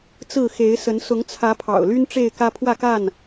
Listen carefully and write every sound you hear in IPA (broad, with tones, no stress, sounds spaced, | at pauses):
t͡s ɹ̩˥˨ x e˨˦ ɪ̯ s ə˨˦ n s ʊ˨˦ ŋ t͡sʰ ä˨˦ pʰ ɑ̰˨˩ ʊ̯ l y˦ n ʈ͡ʂ e˥˨ ɪ̯ k ä˦ pʰ w ä˥˨ k a˥˨ n